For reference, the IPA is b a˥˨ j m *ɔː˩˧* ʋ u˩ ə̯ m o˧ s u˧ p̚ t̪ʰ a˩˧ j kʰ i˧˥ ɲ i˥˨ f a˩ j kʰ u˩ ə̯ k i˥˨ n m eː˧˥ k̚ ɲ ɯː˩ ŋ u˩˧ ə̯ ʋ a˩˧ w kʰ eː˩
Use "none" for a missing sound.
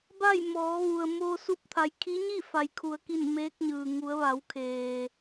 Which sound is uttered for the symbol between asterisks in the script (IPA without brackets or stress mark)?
ɔː˩˧